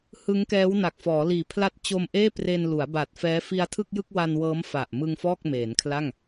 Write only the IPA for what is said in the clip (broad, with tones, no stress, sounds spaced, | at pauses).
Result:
h ɯ˦˥ ŋ k ɛː˦˥ w n a˨˩ k̚ f ɔː˩˦ l iː˨˩ pʰ l a˥˩ t̚ t͡ɕ o˧ m ʔ eː˥˩ p r e˧ n l u˩˦ a̯ b a˨˩ t̚ f ɛː˦˥ f i˧ a̯ tʰ ɯ˥˩ k̚ j ɯ˥˩ k̚ w a˧ n w ɤː˦˥ m f a˨˩ ʔ m ɯ˧ ŋ f ɔː˥˩ k̚ m eː˩˦ n kʰ l a˥˩ ŋ